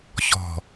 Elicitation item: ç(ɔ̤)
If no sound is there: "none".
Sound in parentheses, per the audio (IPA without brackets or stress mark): ɔ̤